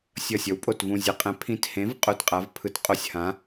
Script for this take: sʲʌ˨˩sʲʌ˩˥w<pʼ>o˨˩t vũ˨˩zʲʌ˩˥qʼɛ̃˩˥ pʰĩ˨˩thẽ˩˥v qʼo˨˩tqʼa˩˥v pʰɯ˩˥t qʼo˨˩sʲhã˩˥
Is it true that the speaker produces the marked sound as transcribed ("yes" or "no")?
yes